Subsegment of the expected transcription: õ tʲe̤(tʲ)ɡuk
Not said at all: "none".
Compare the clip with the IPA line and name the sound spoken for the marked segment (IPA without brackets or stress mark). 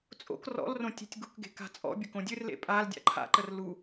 tʲ